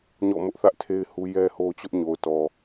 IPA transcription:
ɲ ɔ̰˦˨ m ʊ˦ ʔ θ ä˦ ʔ tʰ e˦ ɪ̯ h u˦ j ɛ˦ h o˦ t͡ɕ ʊ˦ ʔ ɲ o˨ ʊ̯ t ɔ˨

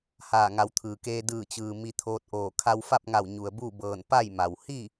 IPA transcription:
h aː˧˩ ŋ a˩˧ w t̪ʰ ɯː˩ k eː˧ d ɯː˧˩ t͡ɕ ɯː˩ m i˧ t̪ʰ oː˧ t̚ ʔ oː˧˩ kʰ a˧ w f a˥˨ p̚ ŋ a˧˩ w ɲ u˩ ə̯ b u˥˨ b ɤː˧˩ n p a˥˨ j m a˩ w h i˥˨

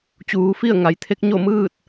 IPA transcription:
t͡ɕ uː˩˧ f i˥˨ ə̯ ŋ a˩ j t̪ʰ e˧˥ k̚ ɲ o˥˨ m ɯː˥˨ t̚

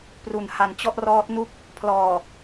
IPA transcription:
p r u˨˩ n h a˨˩ n t͡ɕ ɔ˥˩ ʔ r ɔː˦˥ t̚ n u˦˥ k̚ | pʰ l ɔː˨˩

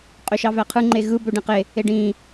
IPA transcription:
qʼ ø ʃ ɑ v æ qʰ ɯ ŋ͡ǃ e ɣ ɯ b ø ɖ ẽ q e | e ɖ ĩː

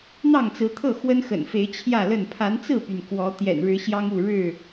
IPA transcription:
n̪ ɑ˥˨ ŋ t͡s ɹ̩˨˦ t̪ʰ ɤ˥˨ x w ə˦ n x ə̰˨˩ n f e˨˦ ɪ̯ t͡ɕʰ j ä˥˨ l ə˥˨ n pʰ a˨˦ n t͡s ɹ̩˥˨ p y˩ n k w ɔ˨˦ t̪ j ɛ̰˨˩ n ɻ ɻ̩˨˦ ɕ j ɑ˦ ŋ u˥˨ ɻ ɻ̩˥˨

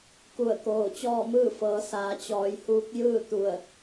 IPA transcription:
k u˧˩ ə̯ k oː˧˩ t͡ɕ ɔː˥˨ m ɯː˥˨ f ɤː˩˧ s aː˩˧ t͡ɕ ɔː˩˧ j h uː˧˥ k̚ j ɯː˥˨ t̪ u˧˩ ə̯

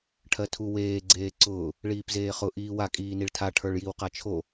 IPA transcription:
ʈʰ ɜ tʰ u w eː ɡ͡ǀ eː ǀ ʊː | ɭ iː p z eː χ ʊ ʔ iː w a kʼ iː n i ɭ tʰ a ʈʰ ə˞ ɭ j i w q a t͡ʃʰ o

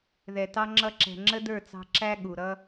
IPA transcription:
ð ɛ˨ t ɑ˦ ŋ͡ǁ ʌ˧ ǁ ɛ̤˨ ŋ͡ǁ ə˦ d ə˞˦˨ t͡s ɑ̤˧ ǁ æ˦ ɠ u˨ ɾ ʌ˦

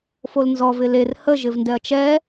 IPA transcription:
f o l n z ɔ v ɪ l e r h ə ʒ ɪ v n d ɛ ɐ̯ t͡ʃ ɛ

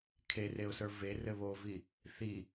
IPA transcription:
kʰ e r e ʊ̯ s ə˞ v e r ɘ β o v i | θ i

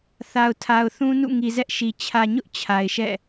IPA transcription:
θ a˨ ʊ̯ tʰ a˨ ʊ̯ θ ũ˦ n ṵ˦˨ ŋ i˨ z ɛ˦ ʔ ʃ i˨ t͡ɕʰ ä˨ ɲ ʊ˦ ʔ t͡ɕʰ a˨ ɪ̯ ʃ ɛ̰˦˨

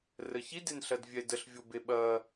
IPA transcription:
r ə ç i d e n ɬ ɐ d vʲ ɛ d ə ɬ vʲ o b e ɓ ɐ

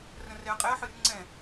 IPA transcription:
r ə̃ r ɛ ɐ̯ qʼ ɛ ɐ̯ ħ ɨ r ŋ͡ǀ ɛ̃

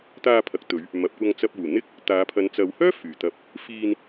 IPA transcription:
t̪ aː˧ pʰ ɐ˨ k̚ t̪ ɵ˨˧ ɥ | m ɐ˨ p̚ kʷ ɐ˧ ŋ t͡s ɐ˧ p̚ uː˨˩ n̪ ɪ˥ k̚ | t̪ aː˨˧ pʰ ɐ˨˧ n t͡s ɐ˨˧ w h œː˥ f yː˨˩ t̪ ɐ˧ p̚ | f iː˧ n

